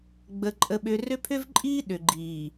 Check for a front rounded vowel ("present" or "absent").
present